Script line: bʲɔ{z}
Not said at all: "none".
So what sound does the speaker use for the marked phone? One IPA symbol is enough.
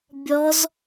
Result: z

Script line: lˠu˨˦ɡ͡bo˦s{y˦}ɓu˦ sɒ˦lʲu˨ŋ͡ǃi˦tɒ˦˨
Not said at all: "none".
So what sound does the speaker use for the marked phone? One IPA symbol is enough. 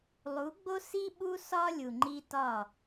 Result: i˦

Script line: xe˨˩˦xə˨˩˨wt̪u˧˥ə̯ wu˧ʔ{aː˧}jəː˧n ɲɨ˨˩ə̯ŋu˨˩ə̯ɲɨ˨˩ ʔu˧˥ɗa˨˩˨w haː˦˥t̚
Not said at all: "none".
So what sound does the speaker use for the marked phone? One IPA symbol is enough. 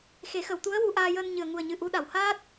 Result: aː˧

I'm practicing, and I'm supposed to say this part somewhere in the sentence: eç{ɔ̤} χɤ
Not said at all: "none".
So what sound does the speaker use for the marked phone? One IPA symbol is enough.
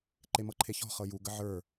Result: ɔ̤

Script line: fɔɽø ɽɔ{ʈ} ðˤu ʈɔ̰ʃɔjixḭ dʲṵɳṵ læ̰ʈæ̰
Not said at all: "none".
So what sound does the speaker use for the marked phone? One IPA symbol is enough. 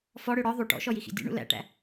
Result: none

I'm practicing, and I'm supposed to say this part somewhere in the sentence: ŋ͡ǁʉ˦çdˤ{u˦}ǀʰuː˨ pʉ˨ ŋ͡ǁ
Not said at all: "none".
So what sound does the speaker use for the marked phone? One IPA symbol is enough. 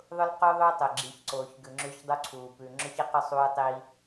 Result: u˦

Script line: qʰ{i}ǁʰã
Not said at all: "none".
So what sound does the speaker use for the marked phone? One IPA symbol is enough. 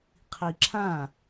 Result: i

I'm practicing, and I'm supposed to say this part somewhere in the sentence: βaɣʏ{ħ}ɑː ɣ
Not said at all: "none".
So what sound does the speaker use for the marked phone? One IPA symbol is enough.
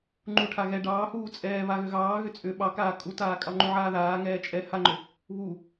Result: ɣ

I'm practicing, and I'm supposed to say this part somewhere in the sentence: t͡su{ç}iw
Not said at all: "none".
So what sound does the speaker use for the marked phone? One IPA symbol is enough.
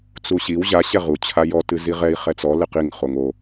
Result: ɕ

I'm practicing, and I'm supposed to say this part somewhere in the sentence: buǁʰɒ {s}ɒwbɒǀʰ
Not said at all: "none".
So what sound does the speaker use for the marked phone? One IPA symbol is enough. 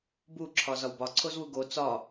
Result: z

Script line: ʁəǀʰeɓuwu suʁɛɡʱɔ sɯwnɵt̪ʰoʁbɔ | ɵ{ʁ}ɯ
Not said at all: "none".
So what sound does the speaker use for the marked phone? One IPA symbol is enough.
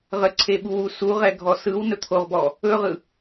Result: ʁ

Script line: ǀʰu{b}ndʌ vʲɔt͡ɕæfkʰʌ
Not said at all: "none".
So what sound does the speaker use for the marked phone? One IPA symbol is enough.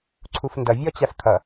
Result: f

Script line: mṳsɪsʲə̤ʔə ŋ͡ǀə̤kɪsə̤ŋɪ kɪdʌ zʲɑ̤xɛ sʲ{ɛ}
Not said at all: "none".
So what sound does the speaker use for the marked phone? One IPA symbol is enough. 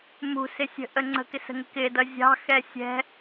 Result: ɛ̤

